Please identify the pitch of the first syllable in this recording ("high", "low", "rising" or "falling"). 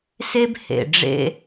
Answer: high